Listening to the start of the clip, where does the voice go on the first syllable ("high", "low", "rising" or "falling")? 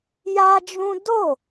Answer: high